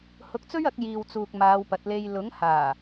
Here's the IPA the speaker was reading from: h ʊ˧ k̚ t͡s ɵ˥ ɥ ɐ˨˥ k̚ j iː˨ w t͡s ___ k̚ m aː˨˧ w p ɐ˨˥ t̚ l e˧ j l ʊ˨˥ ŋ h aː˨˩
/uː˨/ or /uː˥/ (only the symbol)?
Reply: uː˨